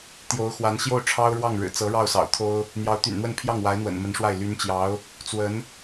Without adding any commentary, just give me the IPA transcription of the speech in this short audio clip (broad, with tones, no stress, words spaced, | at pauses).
t̪jo˧˥ʊ̯xwa˧˥n ɕjo˥˩ʊ̯ʈ͡ʂʰɑ˥ʊ̯ɻwɑ˥˩ŋ ɻɻ̩˨˩t͡sɤ˧˥ ɻɑ˥˩ʊ̯sɑ̰˨˩ʊ̯ t̪ʰo˥ʊ̯ | n̪jɑ˧˥ʊ̯t̪y̰˨˩nn̪wə˥˧n pʰjɑ˥˩ŋ wa˧˥ɪ̯n̪wə̰˨˩n mə˧˥nʂwa˥˩ɪ̯ ly˧˥nt͡ɕjɑ˧˥ʊ̯ | t͡swə˧˥n